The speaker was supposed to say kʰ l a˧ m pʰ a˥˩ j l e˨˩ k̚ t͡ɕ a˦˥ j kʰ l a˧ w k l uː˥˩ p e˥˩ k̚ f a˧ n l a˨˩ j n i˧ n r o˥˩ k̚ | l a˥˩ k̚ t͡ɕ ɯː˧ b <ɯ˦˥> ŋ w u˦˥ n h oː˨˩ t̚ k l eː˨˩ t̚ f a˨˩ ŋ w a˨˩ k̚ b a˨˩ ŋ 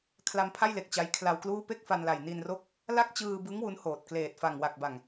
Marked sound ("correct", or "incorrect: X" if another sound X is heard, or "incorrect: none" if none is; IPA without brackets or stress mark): correct